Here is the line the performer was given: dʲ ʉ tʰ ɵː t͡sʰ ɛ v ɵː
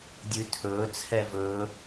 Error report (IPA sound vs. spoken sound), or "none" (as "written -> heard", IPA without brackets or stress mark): none